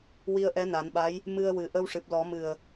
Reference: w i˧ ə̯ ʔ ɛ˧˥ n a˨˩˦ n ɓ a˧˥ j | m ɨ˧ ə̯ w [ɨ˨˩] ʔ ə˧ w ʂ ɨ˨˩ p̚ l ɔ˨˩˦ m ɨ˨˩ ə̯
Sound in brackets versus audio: correct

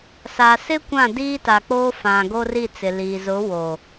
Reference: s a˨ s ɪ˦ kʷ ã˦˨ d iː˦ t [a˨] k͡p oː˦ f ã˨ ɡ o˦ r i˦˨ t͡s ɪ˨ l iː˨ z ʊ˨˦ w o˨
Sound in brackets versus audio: correct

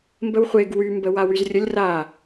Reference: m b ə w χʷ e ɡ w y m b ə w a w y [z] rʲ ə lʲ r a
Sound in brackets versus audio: correct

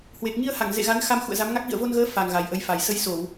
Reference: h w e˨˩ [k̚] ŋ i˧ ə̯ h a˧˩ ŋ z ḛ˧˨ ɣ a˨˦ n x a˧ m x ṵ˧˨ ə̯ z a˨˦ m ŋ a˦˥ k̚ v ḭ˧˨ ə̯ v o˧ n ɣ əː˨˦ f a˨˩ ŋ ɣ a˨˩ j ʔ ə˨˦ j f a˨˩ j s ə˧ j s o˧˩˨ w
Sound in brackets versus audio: correct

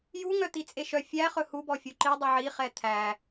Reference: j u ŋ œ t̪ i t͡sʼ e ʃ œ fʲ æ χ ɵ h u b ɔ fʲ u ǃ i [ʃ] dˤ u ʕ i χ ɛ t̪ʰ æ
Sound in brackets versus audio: incorrect: none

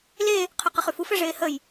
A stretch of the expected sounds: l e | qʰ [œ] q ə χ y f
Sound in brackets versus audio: correct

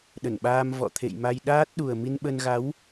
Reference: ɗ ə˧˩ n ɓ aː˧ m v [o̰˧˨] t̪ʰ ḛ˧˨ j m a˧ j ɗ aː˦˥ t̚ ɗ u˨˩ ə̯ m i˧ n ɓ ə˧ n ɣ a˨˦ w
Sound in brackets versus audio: incorrect: ɔ̰˧˨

